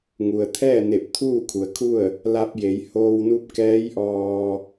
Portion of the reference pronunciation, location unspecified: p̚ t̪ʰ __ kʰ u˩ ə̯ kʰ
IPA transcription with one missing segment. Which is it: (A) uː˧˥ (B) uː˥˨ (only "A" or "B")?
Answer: B